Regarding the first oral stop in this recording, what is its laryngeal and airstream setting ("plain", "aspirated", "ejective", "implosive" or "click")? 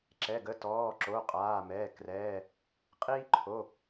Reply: click